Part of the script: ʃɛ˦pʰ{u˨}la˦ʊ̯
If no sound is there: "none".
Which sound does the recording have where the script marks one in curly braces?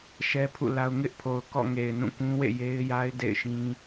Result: ṵ˦˨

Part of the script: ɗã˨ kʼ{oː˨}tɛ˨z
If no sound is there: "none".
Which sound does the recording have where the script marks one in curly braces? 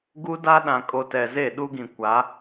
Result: o˨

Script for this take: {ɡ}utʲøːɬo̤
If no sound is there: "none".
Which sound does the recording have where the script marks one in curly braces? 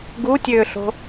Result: ɡ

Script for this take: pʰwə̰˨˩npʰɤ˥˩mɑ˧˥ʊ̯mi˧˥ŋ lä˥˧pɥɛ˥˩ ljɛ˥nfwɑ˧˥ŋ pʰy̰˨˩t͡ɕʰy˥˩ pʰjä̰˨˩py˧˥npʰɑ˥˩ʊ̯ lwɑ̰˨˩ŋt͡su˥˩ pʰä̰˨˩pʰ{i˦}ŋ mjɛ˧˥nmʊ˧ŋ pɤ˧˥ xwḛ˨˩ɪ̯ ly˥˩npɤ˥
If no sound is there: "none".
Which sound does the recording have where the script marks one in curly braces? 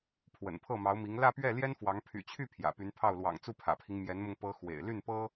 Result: i˦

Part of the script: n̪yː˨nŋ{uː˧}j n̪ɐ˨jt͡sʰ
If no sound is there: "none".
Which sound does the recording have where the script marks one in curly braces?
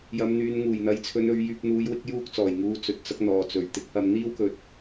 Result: uː˨˩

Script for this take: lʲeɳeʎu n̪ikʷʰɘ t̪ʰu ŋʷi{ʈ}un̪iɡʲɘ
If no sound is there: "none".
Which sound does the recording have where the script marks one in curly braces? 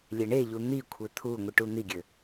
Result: ʈ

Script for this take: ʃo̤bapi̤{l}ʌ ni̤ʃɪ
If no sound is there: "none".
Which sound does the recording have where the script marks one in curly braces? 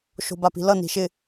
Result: l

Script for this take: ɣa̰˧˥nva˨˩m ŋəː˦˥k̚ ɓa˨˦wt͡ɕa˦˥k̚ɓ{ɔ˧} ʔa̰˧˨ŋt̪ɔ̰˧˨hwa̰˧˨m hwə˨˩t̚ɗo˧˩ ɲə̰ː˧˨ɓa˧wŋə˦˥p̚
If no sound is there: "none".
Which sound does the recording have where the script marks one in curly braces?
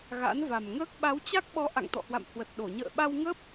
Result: ɔ˨˦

